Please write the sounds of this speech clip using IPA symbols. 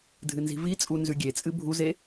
dʱɨnzi̤vit͡sʼu nzʉɡʲet͡sʼɨ bʱuze

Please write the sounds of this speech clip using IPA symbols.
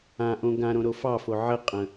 ãʔõ ɡãɾõɾo fɑfo ʕəqʼə̃

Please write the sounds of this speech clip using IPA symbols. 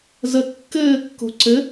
zə kːɘːkːo̤ ǀɘ

